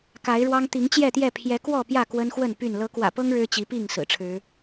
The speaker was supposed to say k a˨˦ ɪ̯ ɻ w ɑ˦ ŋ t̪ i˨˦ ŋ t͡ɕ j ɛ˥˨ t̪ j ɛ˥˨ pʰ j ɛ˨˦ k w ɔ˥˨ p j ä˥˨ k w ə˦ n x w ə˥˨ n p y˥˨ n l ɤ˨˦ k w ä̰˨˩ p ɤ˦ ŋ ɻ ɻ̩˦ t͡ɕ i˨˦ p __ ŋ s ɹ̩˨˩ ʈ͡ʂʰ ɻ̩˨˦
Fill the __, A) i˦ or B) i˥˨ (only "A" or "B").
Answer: B